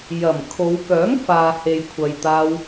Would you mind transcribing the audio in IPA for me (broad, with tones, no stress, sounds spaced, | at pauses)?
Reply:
j ɐ˨˩ m kʰ o˨˧ w k œː˨˥ ŋ f aː˨ h e˨ j kʷʰ ɐ˨ j t̪ aː˧ w